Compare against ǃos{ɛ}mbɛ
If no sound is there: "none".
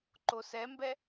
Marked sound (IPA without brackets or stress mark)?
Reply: ɛ